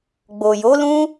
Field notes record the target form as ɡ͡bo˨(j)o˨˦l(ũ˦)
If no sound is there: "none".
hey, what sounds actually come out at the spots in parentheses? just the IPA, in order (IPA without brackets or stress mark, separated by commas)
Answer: j, ũ˦